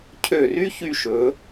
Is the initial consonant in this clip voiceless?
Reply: yes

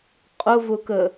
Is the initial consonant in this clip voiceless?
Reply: yes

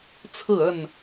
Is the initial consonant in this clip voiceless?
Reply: yes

